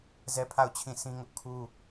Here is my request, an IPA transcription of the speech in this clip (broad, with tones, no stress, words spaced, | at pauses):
zɛ˦pʰa˦˨ʊ̯ t͡ɕʰĩ˦˨sĩ˦ŋʊ˦ʔ kʰu˦